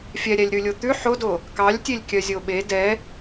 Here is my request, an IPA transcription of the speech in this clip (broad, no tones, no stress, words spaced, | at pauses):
fʲɛɾʲælʲ ɾʉlʲot̪ʉ ħodo | kɑlʲtʲelʲkʲœ zʲoɓe dɛ